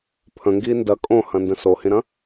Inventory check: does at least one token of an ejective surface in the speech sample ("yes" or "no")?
yes